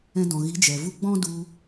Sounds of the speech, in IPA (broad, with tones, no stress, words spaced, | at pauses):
ɛ̃˧dɔ̃˨ ɣi˨˦d͡ʒɛ˨vu˦ ɡ͡bɔ̃˦du˧